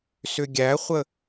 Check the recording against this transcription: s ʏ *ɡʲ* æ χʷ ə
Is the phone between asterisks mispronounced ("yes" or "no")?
no